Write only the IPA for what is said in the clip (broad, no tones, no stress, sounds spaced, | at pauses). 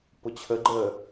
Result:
p ʊ t͡ɕʰ ə ɡ͡ǃ əː